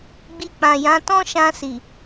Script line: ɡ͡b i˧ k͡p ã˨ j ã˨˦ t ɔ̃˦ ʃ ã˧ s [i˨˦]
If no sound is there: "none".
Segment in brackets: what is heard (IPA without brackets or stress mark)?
i˨